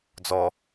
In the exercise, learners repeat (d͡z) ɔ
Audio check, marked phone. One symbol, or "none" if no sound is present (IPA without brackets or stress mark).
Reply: d͡z